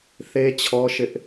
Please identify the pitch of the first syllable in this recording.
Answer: high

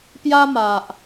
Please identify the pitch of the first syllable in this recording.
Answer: high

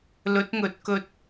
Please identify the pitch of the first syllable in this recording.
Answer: rising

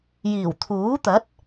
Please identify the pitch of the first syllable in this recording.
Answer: low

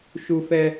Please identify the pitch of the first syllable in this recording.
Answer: high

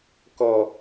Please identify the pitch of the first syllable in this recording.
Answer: low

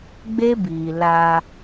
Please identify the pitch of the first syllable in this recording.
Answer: high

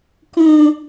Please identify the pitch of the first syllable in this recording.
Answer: high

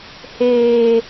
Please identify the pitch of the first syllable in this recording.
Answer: high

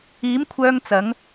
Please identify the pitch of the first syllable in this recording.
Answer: rising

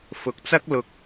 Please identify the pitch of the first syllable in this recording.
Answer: rising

